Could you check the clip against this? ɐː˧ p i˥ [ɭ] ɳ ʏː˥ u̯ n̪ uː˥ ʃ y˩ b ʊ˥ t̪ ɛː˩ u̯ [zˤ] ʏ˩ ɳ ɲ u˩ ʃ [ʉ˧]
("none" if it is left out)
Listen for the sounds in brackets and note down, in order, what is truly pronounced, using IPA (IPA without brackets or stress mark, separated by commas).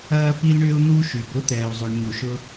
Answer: l, zˤ, ʊ˧